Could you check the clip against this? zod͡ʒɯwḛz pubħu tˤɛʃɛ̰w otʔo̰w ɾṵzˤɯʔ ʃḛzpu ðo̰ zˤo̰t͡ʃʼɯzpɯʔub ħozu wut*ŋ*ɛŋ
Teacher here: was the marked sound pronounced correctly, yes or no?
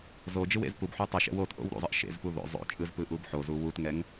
yes